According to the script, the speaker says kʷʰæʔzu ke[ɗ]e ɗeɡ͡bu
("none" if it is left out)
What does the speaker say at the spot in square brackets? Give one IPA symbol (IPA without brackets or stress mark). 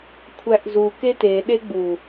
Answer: t